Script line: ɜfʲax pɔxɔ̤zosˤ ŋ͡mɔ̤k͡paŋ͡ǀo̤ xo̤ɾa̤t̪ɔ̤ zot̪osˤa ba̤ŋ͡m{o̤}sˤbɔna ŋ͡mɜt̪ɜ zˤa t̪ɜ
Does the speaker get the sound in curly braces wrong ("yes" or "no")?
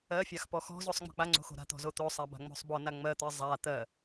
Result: no